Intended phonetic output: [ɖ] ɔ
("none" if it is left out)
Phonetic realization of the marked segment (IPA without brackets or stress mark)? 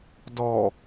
d